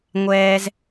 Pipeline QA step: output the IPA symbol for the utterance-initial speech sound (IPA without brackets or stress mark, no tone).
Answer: ŋʷ